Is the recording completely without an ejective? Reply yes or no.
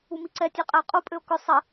no